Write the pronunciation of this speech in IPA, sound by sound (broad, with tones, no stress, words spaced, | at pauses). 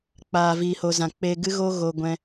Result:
k͡paː˨viː˨ho˨zã˨ k͡pe˧ɡɨ˦ɣo˦ ɣo˧ɡʷɛ̃˧